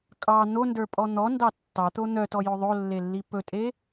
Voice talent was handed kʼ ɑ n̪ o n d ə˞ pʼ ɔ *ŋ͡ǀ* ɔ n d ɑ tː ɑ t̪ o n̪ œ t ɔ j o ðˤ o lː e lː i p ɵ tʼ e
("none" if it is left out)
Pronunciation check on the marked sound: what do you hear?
n̪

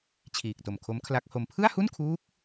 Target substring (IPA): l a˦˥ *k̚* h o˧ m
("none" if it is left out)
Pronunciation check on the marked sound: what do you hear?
k̚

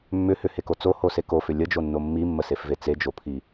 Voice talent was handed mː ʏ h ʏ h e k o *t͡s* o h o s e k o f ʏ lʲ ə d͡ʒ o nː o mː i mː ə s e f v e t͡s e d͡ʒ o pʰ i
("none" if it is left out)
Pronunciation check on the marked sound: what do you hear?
t͡s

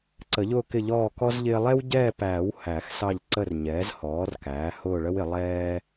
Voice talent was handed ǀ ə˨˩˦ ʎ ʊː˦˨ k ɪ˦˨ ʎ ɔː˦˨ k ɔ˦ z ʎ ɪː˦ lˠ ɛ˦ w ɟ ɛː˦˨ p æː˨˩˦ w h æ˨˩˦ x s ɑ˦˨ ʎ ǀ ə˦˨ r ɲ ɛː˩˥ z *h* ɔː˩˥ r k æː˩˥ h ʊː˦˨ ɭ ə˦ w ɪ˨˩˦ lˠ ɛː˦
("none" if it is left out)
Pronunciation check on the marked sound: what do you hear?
h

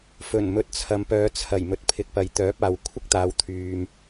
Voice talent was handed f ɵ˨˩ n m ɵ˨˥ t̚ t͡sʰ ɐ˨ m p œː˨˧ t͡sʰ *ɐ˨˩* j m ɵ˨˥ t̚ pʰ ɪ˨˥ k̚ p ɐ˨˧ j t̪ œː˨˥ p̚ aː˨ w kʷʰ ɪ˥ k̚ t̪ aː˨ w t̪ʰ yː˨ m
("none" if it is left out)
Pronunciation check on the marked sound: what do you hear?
ɐ˨˩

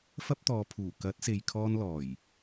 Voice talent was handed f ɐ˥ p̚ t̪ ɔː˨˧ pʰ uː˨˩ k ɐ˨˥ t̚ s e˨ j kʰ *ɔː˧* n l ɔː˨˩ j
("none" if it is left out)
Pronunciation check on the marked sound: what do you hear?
ɔː˧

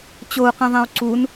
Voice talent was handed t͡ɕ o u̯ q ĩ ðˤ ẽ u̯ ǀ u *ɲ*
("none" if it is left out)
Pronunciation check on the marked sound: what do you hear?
n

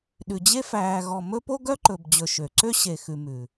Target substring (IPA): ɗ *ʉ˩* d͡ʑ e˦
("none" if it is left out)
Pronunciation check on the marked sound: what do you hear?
ʉ˨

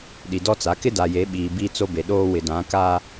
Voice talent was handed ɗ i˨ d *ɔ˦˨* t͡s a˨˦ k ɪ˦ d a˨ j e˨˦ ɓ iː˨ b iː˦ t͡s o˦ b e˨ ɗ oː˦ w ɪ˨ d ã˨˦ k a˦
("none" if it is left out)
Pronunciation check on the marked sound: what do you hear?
ɔ˦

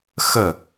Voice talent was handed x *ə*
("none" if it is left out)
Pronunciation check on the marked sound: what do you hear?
ə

